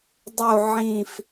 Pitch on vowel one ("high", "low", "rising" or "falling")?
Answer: falling